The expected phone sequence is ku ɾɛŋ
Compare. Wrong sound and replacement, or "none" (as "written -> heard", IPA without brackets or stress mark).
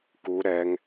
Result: none